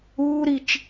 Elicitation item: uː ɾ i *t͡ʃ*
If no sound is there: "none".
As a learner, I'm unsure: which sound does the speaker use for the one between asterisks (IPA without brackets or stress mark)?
t͡ʃ